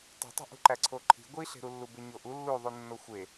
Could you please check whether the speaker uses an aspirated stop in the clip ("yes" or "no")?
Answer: yes